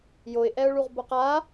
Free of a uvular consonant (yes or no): no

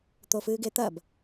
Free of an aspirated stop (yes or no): yes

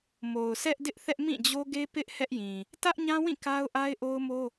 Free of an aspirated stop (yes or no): yes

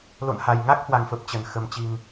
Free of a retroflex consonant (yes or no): yes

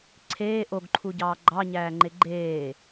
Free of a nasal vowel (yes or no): yes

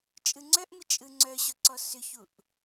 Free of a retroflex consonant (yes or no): yes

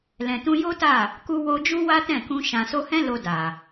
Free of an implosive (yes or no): yes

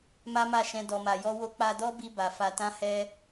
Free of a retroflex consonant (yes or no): yes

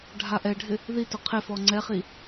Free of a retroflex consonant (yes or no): no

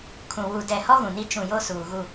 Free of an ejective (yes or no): yes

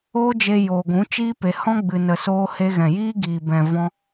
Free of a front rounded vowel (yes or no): yes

